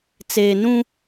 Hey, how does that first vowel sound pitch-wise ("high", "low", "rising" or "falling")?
low